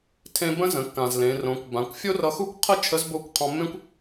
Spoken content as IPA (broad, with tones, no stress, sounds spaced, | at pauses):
tʰ ẽ˧ b ə̃˥ z ə̃˩˧ kː ã˩ z l ẽ˩˧ r õ˩˧ kʷ b ã˩˧ kʷ fʲ o˥ r ʌ˧ x u˥ kʷ qʰ ə˥ t͡ʃʰ ə˧˥ z b o˧˥ kʷ qʰ ɔ̃˧ mː ẽ˥ kʷ